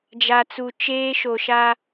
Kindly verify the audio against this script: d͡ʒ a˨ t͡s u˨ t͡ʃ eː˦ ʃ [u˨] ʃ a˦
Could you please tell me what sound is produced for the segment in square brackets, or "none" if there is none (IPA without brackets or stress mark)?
o˨